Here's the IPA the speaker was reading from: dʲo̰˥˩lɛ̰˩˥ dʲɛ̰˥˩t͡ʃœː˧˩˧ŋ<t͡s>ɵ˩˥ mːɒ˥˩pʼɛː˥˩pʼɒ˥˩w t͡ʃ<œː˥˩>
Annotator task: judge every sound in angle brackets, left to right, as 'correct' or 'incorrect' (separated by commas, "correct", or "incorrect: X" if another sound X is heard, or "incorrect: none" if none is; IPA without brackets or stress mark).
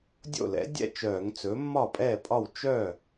correct, incorrect: œ˥˩